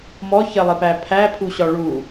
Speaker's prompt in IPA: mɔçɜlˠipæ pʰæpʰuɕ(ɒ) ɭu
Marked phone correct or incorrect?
correct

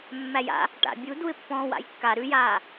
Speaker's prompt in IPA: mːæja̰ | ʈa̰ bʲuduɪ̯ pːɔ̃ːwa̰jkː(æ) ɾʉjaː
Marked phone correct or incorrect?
incorrect: a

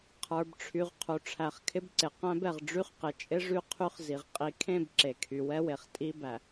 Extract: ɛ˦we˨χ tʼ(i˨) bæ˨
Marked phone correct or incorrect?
incorrect: i˦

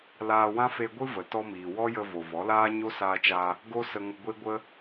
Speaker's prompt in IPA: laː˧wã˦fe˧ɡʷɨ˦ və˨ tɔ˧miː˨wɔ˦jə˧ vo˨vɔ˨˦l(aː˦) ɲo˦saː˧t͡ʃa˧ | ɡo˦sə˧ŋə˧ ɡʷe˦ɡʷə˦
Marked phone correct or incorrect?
correct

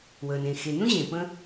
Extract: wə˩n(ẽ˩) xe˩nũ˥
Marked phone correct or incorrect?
correct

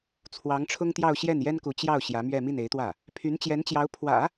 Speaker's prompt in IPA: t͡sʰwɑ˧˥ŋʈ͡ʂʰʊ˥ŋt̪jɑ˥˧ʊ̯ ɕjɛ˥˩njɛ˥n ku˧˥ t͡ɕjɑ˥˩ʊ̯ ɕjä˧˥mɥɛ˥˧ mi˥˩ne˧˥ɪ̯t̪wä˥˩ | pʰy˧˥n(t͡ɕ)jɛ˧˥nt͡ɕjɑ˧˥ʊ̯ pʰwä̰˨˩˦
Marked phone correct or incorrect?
correct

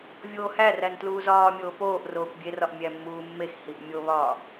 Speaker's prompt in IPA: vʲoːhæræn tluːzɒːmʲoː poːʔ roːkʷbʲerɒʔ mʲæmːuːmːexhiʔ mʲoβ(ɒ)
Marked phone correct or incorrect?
incorrect: ɒː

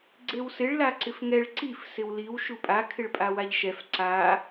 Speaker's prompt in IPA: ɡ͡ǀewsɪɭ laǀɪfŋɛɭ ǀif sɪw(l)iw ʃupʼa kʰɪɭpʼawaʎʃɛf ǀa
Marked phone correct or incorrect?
correct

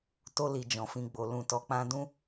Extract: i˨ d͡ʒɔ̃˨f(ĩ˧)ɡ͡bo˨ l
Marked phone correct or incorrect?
correct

